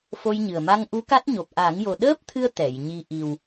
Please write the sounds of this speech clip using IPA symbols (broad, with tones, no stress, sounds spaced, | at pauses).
f o˧ j ɲ ɨ˨˩ ə̯ m a˧ ŋ ʔ u˧˥ k a˦˥ t̚ ɲ o˨˩ p̚ ʔ a˨˩˦ ŋ j o˨˩ ɗ əː˦˥ p̚ t̪ʰ ɨ˧ ə̯ t̪ ɛ˨˩˨ j ɲ i˧ ʔ i˨˩ w